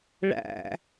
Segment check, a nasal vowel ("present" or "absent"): absent